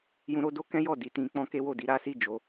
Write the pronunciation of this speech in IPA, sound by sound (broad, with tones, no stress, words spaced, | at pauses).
jũ˧ɾo˧do˦kɛ̃˦ jɔ˦˨ di˨˦tĩ˧k͡pɔ̃˦ ke˦wo˦˨di˧ ɾa˦si˦˨ d͡ʒo˨˦